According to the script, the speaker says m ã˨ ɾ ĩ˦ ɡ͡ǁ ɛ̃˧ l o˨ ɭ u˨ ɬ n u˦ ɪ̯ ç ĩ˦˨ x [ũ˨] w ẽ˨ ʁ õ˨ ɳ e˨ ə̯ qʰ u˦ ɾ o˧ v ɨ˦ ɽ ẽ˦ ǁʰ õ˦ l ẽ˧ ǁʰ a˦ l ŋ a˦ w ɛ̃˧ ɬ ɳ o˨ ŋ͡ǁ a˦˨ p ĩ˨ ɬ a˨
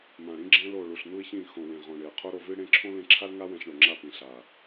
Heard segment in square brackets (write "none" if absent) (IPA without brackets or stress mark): õ˨